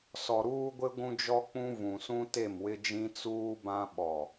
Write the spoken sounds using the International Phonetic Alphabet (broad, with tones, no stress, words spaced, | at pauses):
sɔ˨ɾuː˦ɡʷɪ˦ ɡʷũ˦d͡ʒɔ˦k͡pũ˦ vũ˨sũ˦ te˦˨mwɪ˦d͡ʒĩ˦ t͡suː˦bã˦ ɓɔ˨